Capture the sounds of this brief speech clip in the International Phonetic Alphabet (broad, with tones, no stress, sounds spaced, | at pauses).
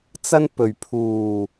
t͡s ɐ˥ n p ɵ˨˩ ɥ pʰ uː˨˩